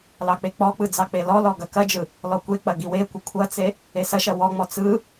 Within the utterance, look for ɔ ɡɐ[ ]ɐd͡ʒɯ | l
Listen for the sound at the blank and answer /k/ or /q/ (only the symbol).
k